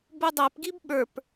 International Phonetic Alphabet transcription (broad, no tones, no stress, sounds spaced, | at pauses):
b u dˤ æ p ɡ i b ɓ ə˞ p